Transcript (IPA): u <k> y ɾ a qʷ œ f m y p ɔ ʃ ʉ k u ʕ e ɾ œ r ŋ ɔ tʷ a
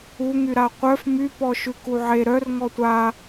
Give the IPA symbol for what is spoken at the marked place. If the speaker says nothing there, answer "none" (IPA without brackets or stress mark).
ŋ